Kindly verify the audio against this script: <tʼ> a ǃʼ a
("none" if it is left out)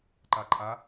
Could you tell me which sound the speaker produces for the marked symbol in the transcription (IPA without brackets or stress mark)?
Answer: ǃ